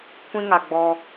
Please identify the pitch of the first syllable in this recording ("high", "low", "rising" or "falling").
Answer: high